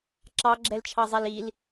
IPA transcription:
ǁɑɡ͡ǁɛlt͡ʃʰɑzˤɛl il

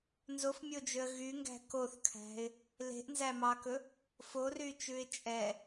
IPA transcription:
nzofmʲod͡ʒøə̯ ɣyŋɡæ̤ koθkʰæ̤ɪ̯ | le̤ʔnzæmɑkɵ | foryt͡ʃʉɪ̯ t͡ʃʼɛ

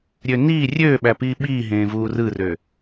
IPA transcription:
ɾʲøniː rʲøːɓæpiː ɓiːɦẽː vuːrɯrø

